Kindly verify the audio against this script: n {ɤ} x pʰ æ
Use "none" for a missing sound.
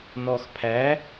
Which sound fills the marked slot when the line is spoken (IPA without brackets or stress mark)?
ɔ